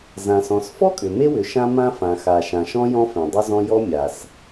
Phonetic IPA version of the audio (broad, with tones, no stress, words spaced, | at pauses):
zã˩sɔ̃˩sfɔ˥kʼʏ˩ me˥wʏ˩ ʃã˥mã˥ fã˩xa˩ ʃã˩ʃɔ̃˥jɔ̃˥ fẽ˩dˤʏ˥zɔ̃˥ jɔ˥mʲa˩s